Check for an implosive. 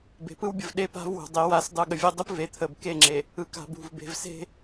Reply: present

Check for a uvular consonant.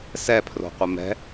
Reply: present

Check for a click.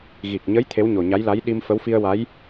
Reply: absent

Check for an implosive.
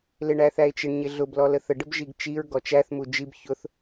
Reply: absent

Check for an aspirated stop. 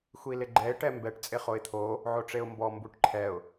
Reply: present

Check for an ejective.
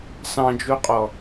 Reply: present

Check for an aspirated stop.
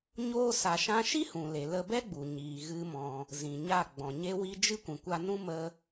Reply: absent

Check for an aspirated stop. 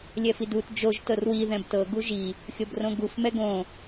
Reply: absent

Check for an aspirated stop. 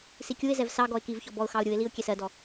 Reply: absent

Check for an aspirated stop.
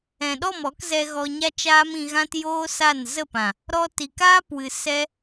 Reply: absent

